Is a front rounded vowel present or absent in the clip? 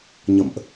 absent